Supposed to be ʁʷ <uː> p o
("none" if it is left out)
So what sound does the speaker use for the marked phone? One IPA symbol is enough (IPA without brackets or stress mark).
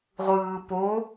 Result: ɯː